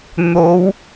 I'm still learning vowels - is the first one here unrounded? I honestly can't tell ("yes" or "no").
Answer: no